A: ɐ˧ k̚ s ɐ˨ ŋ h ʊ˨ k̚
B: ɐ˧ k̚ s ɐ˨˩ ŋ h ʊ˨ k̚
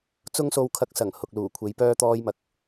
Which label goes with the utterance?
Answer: B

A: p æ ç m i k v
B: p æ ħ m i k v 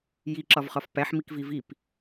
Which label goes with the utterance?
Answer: B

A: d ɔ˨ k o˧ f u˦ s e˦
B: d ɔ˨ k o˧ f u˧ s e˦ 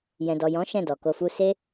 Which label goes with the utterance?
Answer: A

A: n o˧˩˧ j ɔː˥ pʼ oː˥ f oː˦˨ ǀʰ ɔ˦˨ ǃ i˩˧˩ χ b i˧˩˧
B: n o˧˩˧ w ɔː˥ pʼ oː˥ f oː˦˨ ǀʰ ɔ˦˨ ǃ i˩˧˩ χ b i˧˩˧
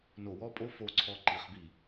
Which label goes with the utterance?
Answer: B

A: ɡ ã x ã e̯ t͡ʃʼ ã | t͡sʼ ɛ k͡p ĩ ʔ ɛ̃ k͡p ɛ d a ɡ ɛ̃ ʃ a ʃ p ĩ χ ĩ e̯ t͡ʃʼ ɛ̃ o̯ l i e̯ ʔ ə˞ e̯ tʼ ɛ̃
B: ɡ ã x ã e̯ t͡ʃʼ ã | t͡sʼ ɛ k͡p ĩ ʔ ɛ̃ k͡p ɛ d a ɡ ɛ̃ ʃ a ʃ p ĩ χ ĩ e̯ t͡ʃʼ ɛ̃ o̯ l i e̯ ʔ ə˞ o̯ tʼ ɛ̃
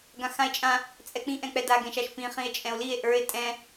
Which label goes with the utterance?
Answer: A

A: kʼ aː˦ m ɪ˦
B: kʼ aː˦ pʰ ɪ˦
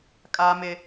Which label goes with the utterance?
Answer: A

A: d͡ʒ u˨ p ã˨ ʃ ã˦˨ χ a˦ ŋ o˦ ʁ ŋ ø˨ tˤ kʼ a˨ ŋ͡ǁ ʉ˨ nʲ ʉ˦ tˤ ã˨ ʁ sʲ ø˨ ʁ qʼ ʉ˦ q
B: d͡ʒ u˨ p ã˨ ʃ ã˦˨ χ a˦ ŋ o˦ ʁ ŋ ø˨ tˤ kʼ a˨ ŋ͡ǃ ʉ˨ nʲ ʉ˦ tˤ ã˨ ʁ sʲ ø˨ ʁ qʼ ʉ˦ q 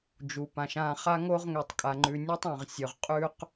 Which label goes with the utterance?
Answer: B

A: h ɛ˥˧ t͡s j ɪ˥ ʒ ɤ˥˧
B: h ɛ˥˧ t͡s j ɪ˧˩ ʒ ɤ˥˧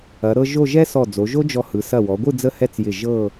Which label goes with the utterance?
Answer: B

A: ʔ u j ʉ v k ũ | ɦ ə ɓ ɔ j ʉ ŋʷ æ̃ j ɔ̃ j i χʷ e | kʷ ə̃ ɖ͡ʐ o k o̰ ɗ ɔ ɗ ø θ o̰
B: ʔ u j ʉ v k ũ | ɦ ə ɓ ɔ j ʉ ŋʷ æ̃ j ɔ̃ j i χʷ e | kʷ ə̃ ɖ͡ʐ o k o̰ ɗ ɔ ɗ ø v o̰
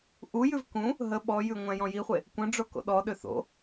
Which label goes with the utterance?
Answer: A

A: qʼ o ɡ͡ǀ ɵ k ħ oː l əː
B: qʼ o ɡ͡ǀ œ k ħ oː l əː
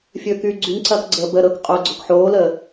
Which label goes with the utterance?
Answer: A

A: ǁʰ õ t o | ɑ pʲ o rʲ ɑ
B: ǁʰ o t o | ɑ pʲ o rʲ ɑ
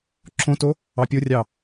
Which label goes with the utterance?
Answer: A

